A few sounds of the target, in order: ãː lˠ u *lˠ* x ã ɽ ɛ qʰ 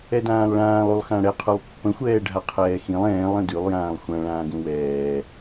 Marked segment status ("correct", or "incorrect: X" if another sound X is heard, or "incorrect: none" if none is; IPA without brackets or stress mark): correct